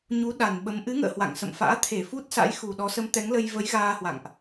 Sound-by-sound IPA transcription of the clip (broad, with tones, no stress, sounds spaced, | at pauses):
ɲ u˨˦ ɗ a˨˩ n ɓ ə˨˦ m ʔ ɨ˨˦ ŋ ə̰ː˧˨ h w a̰˧˨ ŋ s ə̰˧˨ m f a̰ː˧˥ t̪ʰ e˧˩ f u˦˥ t̚ s a̰˧˥ j x u˨˩ ɗ ɔ˨˦ s ə˨˦ m t̪ ɛ˨˦ ŋ l ə˧ j v ə˨˦ j ɣ aː˧ h w a̰˧˨ ŋ ʔ